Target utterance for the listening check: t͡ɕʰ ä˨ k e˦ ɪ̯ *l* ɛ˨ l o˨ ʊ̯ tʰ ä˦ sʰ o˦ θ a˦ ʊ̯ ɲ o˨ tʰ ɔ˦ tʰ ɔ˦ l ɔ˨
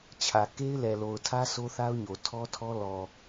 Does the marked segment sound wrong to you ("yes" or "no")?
no